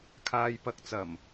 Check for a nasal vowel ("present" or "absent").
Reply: absent